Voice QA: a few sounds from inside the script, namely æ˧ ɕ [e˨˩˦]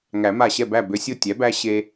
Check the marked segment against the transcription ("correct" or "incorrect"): incorrect